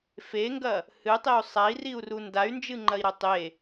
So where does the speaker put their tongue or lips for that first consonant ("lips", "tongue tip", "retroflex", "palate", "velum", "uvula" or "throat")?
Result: lips